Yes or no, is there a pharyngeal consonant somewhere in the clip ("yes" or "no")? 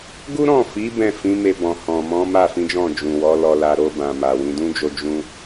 no